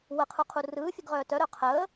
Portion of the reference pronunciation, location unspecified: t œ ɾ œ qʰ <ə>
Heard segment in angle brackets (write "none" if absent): əː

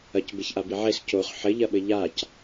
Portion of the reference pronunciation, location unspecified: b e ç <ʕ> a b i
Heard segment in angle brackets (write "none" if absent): ʔ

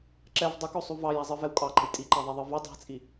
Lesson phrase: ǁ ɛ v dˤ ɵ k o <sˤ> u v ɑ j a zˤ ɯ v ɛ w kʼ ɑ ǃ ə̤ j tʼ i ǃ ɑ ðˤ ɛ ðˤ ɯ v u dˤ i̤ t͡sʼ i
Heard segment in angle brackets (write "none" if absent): sˤ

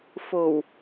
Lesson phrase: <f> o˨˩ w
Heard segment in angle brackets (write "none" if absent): f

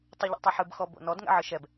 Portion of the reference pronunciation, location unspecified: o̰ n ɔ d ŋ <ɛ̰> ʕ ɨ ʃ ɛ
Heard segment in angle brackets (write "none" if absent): ɛ̰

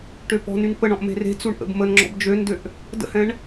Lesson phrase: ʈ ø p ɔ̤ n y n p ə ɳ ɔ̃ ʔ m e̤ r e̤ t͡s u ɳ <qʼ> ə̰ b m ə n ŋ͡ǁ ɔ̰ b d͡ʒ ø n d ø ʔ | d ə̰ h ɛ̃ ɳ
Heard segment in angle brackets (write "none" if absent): ʔ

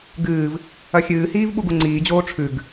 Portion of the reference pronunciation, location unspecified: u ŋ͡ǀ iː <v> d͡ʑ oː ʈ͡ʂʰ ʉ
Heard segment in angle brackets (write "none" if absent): none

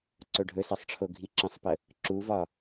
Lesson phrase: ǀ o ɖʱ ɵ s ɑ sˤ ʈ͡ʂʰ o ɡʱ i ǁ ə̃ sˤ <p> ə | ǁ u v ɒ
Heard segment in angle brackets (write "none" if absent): p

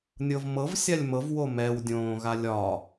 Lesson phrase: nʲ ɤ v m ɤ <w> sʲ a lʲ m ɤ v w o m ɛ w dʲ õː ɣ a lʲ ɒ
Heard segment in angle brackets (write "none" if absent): v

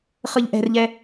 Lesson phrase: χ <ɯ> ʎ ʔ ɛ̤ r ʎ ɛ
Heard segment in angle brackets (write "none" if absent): ɯ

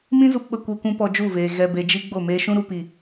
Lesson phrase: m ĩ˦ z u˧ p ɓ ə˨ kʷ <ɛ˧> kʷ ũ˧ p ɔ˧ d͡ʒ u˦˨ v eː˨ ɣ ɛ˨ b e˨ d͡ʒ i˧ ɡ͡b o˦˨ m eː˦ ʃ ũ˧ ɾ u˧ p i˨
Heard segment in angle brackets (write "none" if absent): ɛ˧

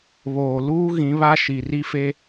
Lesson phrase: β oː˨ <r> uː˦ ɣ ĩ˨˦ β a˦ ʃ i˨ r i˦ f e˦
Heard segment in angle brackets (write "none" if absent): l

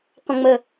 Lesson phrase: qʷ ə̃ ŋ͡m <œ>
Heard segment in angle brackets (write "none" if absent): ə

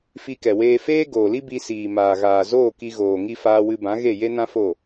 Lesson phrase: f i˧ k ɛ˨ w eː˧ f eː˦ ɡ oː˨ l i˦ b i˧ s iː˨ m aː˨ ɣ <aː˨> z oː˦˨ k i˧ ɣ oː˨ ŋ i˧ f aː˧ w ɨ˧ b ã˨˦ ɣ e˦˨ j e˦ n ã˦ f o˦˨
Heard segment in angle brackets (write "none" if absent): aː˨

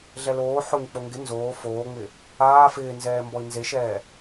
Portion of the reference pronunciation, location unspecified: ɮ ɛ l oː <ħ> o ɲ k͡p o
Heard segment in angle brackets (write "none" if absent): ħ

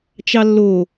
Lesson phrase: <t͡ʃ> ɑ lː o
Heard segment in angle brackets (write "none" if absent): t͡ʃ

